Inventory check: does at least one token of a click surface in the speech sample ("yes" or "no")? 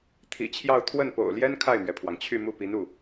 no